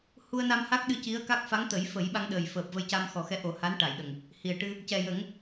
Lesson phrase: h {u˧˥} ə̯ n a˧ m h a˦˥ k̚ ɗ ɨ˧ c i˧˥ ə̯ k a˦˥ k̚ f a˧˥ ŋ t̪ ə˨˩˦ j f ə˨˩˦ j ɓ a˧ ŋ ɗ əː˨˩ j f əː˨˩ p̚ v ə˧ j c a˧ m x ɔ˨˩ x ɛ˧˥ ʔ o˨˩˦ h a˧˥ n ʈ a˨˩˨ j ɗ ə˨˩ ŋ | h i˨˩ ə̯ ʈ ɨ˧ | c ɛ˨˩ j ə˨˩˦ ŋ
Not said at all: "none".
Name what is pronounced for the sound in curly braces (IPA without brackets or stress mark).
u˧